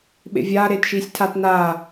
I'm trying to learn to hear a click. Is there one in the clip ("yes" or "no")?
no